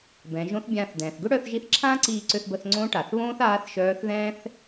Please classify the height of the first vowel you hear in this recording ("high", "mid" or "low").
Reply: mid